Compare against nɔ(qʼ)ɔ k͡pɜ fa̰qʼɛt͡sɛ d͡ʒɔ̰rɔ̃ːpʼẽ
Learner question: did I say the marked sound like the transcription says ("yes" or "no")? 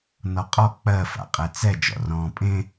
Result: yes